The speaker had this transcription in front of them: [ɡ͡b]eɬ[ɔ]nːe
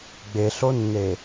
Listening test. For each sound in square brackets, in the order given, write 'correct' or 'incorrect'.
correct, incorrect: o

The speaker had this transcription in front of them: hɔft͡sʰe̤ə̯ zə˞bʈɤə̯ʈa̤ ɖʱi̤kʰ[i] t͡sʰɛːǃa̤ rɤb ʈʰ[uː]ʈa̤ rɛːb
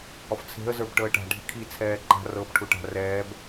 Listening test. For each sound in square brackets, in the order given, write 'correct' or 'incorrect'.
correct, incorrect: u

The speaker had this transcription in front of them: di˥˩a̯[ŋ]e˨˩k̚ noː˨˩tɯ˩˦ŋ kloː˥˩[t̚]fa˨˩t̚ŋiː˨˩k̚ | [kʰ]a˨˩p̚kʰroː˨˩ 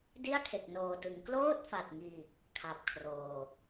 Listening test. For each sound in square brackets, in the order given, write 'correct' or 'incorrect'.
incorrect: kʰ, correct, correct

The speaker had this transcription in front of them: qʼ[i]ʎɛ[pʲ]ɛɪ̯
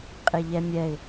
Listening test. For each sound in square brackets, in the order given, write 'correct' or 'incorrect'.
incorrect: e, incorrect: mʲ

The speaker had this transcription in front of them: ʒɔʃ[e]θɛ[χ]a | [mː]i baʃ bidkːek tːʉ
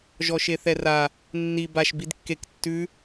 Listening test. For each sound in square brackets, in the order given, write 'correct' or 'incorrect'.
correct, incorrect: r, incorrect: nː

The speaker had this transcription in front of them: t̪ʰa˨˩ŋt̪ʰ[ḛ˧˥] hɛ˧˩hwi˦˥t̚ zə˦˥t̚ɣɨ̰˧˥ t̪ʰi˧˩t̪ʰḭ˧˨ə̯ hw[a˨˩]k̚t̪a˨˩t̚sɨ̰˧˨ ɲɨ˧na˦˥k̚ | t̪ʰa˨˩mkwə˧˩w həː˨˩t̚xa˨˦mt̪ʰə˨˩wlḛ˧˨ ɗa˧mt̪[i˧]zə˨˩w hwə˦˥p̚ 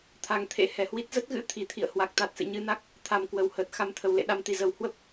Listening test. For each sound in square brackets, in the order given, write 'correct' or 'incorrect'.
correct, correct, incorrect: i˨˩

